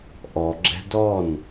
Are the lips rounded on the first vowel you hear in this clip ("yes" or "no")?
yes